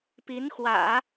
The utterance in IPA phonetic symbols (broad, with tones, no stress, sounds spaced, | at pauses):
p i˧˥ n x w ä̰˨˩˦